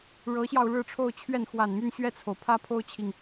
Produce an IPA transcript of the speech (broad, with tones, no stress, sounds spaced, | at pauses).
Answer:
ɻ ɤ˧˥ ɕ j ɑ˧ ʊ̯ ɻ ɻ̩˥˧ ʈ͡ʂʰ o˥˧ ʊ̯ t͡ɕʰ ɥ ɛ˥˩ n x w a˨˩ n m y˥˧ n ɕ ɥ ɛ˥˩ t͡sʰ o˩ ʊ̯ pʰ ä˥ pʰ o˥ ʊ̯ t͡ɕʰ i˨ ŋ